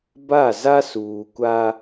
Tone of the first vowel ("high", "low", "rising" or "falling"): falling